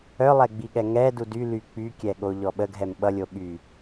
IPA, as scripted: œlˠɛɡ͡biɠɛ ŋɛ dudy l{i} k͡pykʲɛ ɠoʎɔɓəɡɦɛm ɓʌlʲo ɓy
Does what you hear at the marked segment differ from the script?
yes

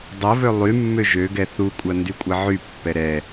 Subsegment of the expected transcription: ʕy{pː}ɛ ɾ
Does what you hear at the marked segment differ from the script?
no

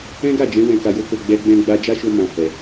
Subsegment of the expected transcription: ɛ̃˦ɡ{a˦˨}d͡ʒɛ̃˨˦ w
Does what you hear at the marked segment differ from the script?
no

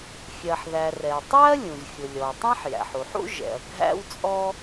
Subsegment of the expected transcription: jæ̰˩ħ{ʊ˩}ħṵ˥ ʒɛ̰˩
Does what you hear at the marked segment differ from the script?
yes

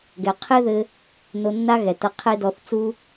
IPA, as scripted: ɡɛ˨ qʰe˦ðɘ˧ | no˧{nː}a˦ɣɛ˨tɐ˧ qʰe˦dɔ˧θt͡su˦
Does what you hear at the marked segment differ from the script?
no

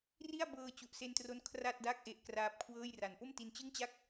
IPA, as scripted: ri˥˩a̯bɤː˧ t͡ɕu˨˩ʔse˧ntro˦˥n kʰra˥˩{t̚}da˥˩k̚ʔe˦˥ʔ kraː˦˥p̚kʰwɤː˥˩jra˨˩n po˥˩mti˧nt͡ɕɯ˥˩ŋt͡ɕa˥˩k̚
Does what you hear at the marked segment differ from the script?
no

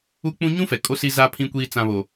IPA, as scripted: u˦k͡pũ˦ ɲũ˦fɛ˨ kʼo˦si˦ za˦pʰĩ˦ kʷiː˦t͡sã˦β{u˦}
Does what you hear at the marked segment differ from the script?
yes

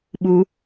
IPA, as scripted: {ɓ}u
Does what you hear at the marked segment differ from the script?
no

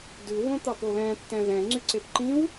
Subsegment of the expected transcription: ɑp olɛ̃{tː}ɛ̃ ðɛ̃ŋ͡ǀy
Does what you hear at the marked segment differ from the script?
no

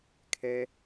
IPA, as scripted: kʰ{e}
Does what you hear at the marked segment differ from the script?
yes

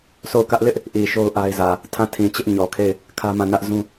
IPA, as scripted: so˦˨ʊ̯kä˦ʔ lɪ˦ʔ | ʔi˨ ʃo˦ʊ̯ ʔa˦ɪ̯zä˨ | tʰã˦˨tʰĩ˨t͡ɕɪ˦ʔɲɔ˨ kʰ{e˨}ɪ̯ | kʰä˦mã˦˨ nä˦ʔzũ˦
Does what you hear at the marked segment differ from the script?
yes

